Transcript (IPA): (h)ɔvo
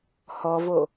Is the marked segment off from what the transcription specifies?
no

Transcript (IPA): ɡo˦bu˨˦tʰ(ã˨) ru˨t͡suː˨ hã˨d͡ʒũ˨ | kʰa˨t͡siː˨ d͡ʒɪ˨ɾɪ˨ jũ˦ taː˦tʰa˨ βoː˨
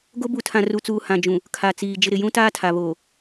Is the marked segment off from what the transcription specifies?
no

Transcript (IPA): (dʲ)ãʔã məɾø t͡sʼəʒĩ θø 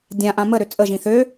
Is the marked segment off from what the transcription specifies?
no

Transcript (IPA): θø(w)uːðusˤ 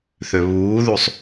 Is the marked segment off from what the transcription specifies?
yes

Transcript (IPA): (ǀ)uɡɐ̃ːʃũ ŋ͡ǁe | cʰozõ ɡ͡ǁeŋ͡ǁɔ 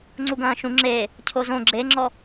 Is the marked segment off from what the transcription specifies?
yes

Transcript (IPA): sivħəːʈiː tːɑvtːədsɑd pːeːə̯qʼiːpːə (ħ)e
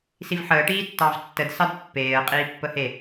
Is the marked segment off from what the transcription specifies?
yes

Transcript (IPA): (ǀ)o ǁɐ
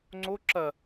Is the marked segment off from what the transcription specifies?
yes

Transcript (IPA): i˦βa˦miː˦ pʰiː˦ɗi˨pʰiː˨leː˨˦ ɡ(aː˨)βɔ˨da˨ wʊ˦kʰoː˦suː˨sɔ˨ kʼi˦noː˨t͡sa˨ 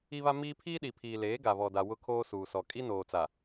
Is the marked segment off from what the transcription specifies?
yes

